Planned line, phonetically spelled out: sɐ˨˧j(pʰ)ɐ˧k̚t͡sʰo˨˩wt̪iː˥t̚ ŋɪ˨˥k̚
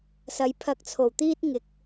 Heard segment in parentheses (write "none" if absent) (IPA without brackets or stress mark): pʰ